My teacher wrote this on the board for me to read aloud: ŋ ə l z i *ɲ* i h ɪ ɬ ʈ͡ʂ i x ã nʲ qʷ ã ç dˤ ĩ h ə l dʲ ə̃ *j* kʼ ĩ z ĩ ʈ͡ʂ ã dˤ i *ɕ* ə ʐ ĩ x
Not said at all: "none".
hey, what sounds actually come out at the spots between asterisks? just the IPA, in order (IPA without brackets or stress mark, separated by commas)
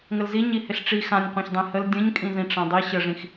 ɲ, ɲ, ɕ